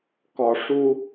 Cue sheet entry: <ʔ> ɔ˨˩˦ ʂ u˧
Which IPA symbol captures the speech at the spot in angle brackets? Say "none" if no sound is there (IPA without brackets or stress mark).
k